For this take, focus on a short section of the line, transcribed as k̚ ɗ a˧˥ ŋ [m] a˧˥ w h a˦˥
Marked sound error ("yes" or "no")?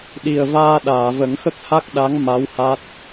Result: no